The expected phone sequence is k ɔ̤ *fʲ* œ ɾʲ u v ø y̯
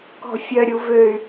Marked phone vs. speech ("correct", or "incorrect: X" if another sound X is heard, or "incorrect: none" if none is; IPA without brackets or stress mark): correct